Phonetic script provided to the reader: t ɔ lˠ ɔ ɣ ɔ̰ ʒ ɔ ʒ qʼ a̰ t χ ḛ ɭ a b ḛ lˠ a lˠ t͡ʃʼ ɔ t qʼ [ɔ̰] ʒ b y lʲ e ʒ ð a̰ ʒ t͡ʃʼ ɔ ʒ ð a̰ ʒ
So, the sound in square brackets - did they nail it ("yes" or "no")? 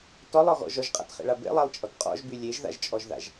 yes